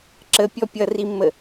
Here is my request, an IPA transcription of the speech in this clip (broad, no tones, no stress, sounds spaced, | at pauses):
ǁ ə pʲ ɔ pʲ ʌ r i mː ə